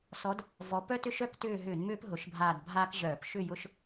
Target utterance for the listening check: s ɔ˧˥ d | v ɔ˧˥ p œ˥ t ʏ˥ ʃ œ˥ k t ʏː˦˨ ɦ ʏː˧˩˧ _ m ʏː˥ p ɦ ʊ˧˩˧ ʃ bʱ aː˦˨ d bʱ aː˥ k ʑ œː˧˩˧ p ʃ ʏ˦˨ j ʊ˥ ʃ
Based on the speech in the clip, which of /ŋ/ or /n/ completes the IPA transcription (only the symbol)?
n